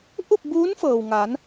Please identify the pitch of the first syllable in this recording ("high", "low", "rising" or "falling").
falling